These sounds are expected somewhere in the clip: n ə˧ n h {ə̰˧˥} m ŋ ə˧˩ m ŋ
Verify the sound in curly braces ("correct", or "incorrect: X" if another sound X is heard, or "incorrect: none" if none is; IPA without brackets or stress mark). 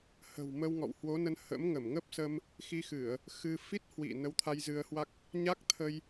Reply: correct